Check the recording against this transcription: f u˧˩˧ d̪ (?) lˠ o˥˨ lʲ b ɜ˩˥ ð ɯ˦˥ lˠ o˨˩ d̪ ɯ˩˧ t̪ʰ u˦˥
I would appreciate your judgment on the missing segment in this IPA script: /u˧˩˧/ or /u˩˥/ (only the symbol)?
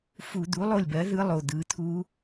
u˩˥